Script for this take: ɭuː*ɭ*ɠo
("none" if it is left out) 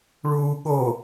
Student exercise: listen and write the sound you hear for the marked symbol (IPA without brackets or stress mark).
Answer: none